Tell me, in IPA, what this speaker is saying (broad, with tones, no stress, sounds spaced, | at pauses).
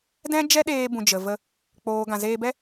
d ɛ̃˦ d͡ʒ ɛ˦ ɗ eː˧ b ũ˨ d͡ʒ ə˨ v ə˧ | k͡p oː˨ ɡ ã˨ z eː˧ b ɛ˦